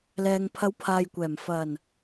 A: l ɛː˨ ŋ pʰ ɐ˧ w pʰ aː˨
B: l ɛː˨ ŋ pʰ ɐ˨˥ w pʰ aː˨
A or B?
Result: B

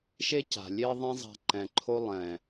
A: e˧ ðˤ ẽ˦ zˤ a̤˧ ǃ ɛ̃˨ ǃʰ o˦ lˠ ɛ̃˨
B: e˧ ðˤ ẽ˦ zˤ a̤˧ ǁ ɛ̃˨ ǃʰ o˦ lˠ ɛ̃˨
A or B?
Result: A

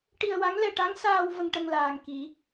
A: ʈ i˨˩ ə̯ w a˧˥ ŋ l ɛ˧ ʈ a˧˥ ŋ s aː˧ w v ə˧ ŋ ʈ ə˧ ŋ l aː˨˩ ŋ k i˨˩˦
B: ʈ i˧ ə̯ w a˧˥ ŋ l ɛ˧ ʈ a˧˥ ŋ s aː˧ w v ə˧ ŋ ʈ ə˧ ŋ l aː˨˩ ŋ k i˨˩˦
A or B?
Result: B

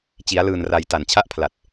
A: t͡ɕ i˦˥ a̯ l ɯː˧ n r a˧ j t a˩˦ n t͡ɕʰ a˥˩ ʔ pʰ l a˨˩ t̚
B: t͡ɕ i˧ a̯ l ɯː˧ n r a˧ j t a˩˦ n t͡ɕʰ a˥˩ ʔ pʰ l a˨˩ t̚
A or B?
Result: A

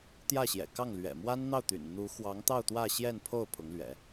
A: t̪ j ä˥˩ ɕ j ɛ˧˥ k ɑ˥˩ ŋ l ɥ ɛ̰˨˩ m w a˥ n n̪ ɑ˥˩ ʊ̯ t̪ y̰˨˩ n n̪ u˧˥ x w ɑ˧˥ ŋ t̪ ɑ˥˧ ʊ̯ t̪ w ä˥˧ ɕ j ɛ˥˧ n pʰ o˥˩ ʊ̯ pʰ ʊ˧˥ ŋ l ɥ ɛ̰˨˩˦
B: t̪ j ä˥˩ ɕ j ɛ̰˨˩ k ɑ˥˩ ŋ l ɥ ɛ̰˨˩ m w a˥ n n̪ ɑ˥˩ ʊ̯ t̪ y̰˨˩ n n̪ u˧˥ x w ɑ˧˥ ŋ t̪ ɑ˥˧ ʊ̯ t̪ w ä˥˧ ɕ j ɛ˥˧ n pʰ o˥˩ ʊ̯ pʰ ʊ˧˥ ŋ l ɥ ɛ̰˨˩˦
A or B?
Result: B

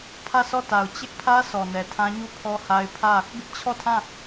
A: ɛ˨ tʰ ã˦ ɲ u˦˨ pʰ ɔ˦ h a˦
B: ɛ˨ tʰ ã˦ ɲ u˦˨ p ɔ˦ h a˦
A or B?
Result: A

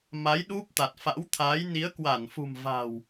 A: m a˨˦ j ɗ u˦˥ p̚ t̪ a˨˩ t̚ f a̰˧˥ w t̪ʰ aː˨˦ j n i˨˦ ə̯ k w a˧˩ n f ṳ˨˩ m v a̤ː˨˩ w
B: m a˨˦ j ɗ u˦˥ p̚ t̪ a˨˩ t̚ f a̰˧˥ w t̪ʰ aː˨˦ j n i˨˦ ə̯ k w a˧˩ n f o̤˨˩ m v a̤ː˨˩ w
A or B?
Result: A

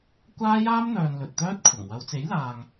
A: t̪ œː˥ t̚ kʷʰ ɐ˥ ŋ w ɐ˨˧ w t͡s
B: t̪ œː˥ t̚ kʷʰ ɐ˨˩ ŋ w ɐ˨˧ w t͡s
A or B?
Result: B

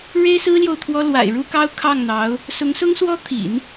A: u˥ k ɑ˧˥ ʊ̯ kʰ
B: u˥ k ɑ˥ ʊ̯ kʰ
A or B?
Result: B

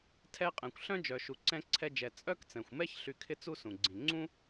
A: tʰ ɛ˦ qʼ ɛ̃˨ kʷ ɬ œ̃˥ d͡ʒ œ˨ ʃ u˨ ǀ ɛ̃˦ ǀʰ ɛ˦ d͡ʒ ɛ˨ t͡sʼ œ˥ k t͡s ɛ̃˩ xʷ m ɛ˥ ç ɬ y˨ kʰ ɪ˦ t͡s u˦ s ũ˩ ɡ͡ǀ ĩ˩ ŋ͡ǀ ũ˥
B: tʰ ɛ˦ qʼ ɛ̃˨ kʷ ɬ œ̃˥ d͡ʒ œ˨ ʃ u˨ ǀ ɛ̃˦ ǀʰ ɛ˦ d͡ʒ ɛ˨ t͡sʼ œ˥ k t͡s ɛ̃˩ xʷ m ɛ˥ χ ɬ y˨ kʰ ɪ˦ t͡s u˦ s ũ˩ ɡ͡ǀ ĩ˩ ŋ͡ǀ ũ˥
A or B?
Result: A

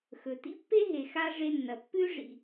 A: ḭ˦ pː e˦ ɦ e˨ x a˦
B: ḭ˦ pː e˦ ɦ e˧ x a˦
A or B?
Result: A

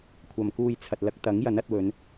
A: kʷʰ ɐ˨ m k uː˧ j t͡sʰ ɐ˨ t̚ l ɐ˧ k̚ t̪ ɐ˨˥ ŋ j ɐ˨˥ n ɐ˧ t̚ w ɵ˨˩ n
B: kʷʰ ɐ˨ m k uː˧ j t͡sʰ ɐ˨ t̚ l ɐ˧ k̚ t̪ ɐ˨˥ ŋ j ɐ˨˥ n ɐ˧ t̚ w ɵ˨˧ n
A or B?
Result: B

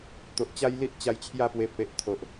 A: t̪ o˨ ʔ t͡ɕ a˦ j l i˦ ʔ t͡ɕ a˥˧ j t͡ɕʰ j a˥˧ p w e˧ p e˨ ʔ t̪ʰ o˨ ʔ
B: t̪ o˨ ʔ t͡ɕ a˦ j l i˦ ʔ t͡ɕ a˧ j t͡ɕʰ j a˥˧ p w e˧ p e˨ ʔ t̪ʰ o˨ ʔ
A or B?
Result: B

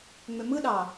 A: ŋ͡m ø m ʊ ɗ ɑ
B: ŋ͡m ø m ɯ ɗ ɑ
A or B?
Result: B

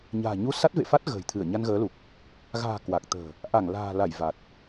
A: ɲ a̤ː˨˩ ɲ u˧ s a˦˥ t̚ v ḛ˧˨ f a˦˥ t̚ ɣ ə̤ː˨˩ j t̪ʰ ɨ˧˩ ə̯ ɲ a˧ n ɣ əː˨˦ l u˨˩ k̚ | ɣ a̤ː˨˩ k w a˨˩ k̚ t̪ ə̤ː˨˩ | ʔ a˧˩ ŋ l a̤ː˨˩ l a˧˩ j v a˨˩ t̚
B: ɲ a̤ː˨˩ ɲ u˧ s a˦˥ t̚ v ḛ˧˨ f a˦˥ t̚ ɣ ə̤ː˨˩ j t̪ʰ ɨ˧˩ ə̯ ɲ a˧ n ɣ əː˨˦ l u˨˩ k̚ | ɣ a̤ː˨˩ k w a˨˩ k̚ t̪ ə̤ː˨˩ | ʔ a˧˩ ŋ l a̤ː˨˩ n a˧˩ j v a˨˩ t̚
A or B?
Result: A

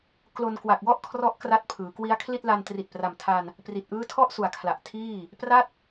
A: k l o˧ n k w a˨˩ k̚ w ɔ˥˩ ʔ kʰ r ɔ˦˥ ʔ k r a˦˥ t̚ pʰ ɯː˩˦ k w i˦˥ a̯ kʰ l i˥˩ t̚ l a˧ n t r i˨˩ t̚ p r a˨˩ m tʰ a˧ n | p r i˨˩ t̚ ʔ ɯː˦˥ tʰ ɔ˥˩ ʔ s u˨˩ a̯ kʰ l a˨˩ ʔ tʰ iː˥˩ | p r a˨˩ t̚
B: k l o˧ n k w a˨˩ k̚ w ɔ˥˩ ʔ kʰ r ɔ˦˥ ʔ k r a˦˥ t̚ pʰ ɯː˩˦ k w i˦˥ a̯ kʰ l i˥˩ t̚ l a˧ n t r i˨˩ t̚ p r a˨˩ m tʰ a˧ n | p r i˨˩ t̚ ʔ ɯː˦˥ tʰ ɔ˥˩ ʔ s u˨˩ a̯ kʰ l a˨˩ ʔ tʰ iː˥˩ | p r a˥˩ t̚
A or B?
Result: B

